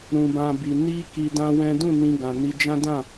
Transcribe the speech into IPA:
ɾũ˨bã˨bi˨ ni˧ ki˧dã˦wɛ̃˦ dũ˦˨nĩ˧ɡã˨ni˧ d͡ʒã˦dã˦˨

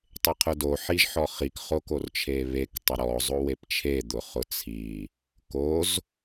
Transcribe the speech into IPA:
tˤeqʰʊdo ħiʒħɔχik χokort͡ʃʰeβek tˤʊɾɔ zˤowept͡ʃʰe d̪ʊχʊt͡sʰi | koz

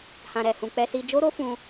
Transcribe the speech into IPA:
hã˨ɾɛ˨hũ˨ k͡pɛ˧si˧ d͡ʒo˦ɾo˦fũ˧

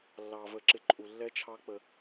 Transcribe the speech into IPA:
lːɑ˨ və˧ǁɪ˦ǃʼu˧ lːɛ˦t͡ʃʰɑ˦k͡pə˧

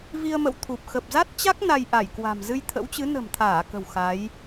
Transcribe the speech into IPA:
vi˧ə̯mə̰˧˨w t̪ʰu˨˩p̚ xə˨˩p̚za˦˥t̚t͡ɕa˦˥k̚ na˧jʔa˧˩jkwa̤˨˩m zɨ˧jt̪ʰə̰˧˥wt͡ɕɨ˨˦ nə̤˨˩mt̪ʰaː˧˩kə̤˨˩w xa˨˦j

